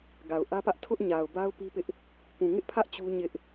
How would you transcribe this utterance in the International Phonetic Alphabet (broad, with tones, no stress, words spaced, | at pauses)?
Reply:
ɡa˨ʊ̯ʔä˦pä˦ʔ tʰʊ˦ʔɲa˨ʊ̯ba˦ʊ̯ pi˦pɪ˦ʔ | pũ˨ŋɪ˦ʔpʰä˦ʔ t͡ɕu˦ɲɪ˦ʔ